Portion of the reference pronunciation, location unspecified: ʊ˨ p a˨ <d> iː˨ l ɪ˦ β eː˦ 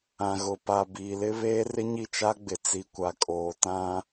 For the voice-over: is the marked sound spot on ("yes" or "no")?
no